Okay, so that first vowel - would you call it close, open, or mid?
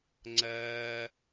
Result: open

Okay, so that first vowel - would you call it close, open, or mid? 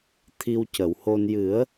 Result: close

